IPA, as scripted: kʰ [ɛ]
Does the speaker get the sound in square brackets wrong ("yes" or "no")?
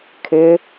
yes